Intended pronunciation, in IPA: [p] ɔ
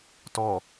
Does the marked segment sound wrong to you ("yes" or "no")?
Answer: yes